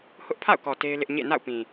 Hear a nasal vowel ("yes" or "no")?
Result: yes